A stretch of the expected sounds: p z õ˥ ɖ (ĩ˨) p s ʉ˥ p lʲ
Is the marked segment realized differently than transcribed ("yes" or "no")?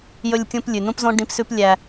yes